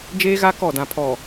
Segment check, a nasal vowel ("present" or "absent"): present